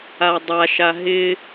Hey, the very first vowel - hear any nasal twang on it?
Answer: no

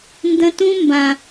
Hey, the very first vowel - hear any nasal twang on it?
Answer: yes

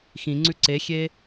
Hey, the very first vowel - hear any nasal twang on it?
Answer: yes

